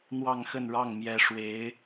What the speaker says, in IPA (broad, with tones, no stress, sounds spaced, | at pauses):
n̪ w ɑ˥˧ ŋ x ə˥˧ n ɻ ɑ˥˩ ŋ m j ɛ˧˥ ʂ w e˧˥ ɪ̯